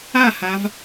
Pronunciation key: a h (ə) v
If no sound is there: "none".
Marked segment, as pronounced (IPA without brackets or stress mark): a